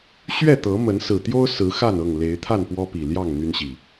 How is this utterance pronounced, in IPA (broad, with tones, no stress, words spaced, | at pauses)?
ɕɥɛ˥˨t̪ɤ˨˦mə˨˦n sɹ̩˨˩t̪jo˦ʊ̯ sɹ̩˨˦ xa˥˨nɤ˥˨ŋ le˨˦ɪ̯t̪ʰa˥˨npwɔ˦pi˨˩ ljɑ˥˨ŋ n̪y˦nɕi˨˩